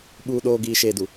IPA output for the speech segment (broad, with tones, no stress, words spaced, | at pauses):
ɓuː˨ɗoː˨ ɡiː˨ʃeː˨du˨